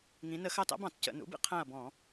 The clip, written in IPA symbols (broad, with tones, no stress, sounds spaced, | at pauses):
ŋ ĩ˩˧ n ə˧˩˧ x ɑ˦˨ t ɑ̰˦˥ b ɑ̃˧˩˧ t c ə̰˧˩˧ n ṵ˩˥ b ḭ˩˧ qʰ æ̃˦˨ ɐ̯ b ɔ̃˧˩˧